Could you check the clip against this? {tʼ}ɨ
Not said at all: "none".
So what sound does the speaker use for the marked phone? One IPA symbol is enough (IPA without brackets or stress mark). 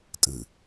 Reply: tʼ